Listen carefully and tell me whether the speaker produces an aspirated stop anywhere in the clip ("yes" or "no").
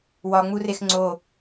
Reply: no